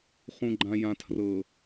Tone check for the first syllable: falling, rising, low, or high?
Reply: low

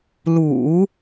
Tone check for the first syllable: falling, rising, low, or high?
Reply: low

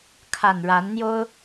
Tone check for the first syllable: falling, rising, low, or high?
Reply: low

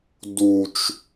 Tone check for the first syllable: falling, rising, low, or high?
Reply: low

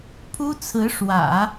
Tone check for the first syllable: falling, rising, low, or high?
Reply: high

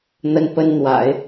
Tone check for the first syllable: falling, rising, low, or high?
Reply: high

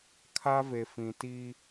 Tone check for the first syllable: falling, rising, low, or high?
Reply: high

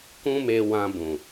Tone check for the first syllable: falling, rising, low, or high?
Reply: high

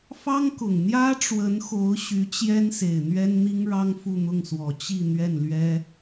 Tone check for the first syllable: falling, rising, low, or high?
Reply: high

